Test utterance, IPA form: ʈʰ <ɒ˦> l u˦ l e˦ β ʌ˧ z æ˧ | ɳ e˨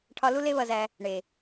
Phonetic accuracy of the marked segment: incorrect: ɒ˧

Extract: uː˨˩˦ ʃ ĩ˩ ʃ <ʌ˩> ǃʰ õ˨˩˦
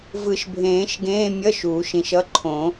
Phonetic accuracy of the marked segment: incorrect: ʌ˧˥˧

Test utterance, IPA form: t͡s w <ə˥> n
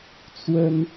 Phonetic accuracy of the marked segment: correct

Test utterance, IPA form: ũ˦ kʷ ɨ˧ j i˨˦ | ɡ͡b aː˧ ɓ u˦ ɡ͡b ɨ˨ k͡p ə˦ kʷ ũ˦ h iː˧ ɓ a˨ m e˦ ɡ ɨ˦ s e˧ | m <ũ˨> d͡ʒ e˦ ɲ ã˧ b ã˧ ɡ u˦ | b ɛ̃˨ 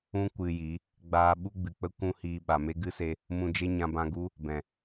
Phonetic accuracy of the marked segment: incorrect: ũ˧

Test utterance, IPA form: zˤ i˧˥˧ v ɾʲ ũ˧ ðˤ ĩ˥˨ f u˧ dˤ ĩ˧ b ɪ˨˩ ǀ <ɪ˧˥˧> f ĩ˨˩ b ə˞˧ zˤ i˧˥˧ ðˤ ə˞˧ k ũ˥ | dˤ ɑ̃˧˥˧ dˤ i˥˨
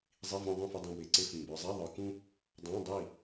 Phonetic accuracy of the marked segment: correct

